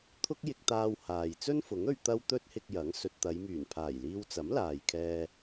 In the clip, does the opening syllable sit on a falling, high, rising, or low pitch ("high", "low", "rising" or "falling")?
high